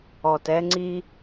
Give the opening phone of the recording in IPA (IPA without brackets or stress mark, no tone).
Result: ɔ